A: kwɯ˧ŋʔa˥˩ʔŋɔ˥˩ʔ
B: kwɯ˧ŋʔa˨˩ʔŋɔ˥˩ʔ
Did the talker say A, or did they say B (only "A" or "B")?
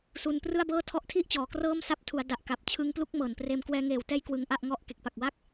A